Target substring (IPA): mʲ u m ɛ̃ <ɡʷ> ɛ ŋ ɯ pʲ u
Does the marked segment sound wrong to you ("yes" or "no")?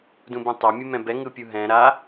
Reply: yes